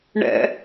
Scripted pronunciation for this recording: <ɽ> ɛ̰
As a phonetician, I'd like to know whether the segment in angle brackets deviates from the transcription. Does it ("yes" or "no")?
yes